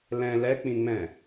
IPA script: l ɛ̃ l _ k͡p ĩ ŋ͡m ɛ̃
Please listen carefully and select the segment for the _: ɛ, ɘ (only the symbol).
ɛ